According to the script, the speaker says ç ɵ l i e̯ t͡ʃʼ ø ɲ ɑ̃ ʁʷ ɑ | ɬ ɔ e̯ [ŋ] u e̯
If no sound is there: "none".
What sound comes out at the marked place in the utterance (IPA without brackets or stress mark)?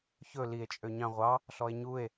ɲ